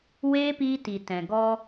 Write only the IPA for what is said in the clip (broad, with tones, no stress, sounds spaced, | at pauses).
w eː˦ p iː˧ t i˨ t ɛ̃˨ ɡ ɔ˧